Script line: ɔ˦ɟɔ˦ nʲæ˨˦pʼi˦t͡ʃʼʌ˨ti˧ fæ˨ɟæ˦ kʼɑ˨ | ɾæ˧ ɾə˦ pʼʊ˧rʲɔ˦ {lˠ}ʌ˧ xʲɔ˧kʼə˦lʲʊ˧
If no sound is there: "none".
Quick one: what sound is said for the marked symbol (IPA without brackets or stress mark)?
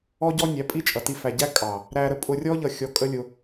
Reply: ʎ